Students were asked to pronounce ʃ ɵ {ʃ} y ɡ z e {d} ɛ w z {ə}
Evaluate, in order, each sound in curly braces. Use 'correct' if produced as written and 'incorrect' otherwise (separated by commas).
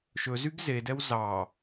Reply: incorrect, correct, incorrect